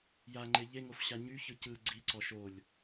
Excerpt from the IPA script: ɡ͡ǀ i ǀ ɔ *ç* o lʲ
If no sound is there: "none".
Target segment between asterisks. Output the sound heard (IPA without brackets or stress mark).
ʃ